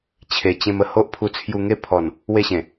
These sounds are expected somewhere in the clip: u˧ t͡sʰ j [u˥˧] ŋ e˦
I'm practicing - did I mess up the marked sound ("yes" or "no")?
yes